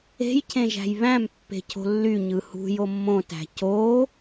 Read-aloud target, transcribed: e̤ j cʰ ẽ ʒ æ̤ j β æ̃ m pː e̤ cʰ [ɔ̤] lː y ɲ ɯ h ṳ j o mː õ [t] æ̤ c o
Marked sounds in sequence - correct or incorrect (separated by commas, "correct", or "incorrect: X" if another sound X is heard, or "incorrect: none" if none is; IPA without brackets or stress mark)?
incorrect: o̤, correct